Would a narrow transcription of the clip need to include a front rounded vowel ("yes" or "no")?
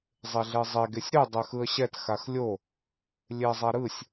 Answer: no